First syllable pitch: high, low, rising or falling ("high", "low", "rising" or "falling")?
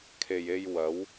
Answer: low